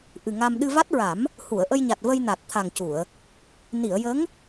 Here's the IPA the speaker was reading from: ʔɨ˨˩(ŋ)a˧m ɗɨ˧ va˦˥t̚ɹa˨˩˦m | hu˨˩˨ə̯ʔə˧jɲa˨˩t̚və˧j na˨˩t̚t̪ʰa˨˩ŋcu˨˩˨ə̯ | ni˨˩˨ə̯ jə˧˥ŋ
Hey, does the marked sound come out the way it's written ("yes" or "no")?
yes